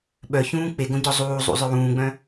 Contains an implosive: yes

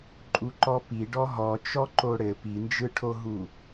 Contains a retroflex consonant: yes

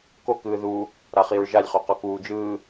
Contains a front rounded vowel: no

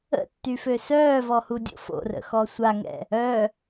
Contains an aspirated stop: no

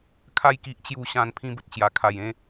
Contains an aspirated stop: yes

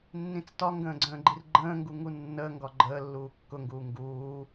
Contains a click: yes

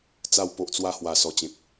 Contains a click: no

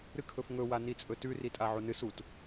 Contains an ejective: yes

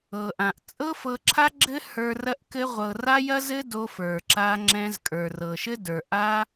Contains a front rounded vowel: no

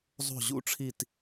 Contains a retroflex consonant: yes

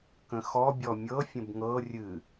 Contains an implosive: no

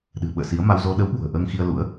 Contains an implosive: yes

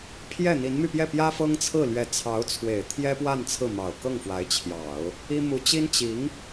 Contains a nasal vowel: no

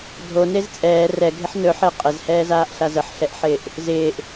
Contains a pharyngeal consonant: yes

